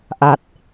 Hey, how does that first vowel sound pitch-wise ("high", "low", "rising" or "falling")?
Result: low